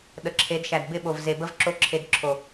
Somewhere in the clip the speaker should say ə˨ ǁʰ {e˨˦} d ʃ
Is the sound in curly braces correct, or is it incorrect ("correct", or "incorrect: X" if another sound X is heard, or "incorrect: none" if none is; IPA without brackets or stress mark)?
correct